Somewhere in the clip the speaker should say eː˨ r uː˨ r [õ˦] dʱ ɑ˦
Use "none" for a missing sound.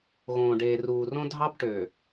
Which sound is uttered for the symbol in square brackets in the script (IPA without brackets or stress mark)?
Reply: õ˦